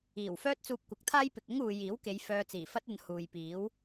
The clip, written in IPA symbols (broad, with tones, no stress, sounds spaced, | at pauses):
iː˨˩ w f œː˥ t̚ t͡s uː˧ p̚ kʷ ɐ˨˥ k̚ t̪ʰ aː˥ j p ɪ˨ k̚ ʊ˥ ŋ uː˨ j iː˨˥ w k e˨˧ j f œː˧ t͡s iː˨˩ f ɐ˥ t̚ ɐ˧ n h uː˨ j p iː˨˥ w